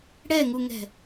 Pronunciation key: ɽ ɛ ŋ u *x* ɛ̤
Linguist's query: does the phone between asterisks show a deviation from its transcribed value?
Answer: yes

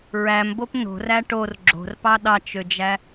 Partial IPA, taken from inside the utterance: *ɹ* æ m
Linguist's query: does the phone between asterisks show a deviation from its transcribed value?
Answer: no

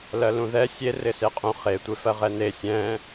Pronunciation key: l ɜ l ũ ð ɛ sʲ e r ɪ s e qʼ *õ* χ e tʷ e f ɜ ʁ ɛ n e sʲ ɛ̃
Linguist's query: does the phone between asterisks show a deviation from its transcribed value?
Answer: yes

